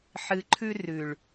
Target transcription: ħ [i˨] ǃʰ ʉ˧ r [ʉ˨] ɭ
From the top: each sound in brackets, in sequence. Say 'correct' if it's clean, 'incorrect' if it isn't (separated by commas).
incorrect, correct